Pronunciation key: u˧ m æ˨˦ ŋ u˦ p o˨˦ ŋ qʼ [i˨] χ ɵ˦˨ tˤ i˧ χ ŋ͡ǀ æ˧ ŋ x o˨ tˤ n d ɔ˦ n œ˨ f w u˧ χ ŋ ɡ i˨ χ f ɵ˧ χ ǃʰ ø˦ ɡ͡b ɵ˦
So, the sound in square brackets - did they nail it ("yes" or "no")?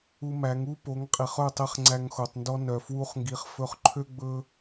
yes